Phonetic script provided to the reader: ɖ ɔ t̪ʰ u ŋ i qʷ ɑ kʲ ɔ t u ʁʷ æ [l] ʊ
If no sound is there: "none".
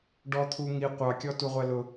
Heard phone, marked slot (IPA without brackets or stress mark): l